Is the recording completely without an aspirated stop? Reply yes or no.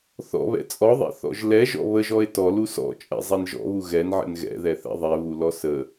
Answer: yes